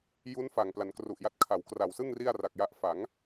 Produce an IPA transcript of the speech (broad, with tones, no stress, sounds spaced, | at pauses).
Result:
j u˦˥ n f a˨˩ ŋ p l a˩˦ n k r u˨˩ ʔ j a˦˥ t̚ kʰ a˩˦ w k r a˨˩ w s ɯ˥˩ ŋ r i˥˩ a̯ r a˨˩ k̚ j a˦˥ ʔ f a˩˦ ŋ